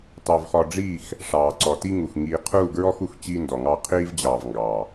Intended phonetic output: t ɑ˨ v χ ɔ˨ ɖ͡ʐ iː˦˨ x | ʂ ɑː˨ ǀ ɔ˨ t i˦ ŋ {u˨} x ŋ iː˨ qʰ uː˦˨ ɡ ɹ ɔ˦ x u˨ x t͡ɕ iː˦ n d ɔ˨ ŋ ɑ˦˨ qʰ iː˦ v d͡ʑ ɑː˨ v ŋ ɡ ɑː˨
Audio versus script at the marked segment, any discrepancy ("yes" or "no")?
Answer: no